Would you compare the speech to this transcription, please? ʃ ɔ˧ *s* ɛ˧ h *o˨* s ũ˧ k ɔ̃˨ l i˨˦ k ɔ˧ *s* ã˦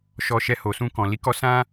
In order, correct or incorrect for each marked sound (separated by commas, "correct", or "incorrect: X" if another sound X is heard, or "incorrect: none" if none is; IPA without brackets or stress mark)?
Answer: incorrect: ʃ, correct, correct